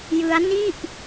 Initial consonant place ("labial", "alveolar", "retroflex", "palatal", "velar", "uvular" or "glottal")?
palatal